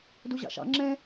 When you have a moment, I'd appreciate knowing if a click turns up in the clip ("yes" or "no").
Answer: yes